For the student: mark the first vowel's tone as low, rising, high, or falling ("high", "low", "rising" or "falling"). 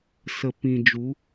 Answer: low